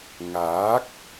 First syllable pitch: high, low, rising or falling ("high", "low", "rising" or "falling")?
rising